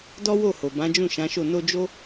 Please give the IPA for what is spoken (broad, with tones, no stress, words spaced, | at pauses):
dɔ˦wo˦˨ho˨bã˨˦ d͡ʒũ˦˨ʃã˨˦ʃo˦˨ no˧d͡ʒo˦